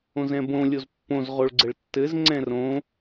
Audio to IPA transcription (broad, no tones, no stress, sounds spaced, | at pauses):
õ z ɛ̃ b õ lʲ o z pː õ z ʁ o ɭ ɡ͡ǀ ɘ ɭ tː ɘ z ŋ͡ǀ ɛ̃ r õ